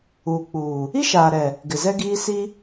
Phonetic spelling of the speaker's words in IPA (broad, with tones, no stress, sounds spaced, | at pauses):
uː˨ k͡p uː˨ | i˦ ʃ aː˨ ɾ ɛ˨ | ɡ ɪ˨ z ɛ˦ ɡ iː˦ s i˦